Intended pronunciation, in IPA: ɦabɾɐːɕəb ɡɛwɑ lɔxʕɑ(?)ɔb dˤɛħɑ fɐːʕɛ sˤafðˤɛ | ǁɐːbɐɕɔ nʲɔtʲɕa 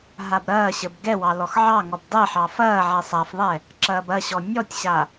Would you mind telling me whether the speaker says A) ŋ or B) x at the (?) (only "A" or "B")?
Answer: A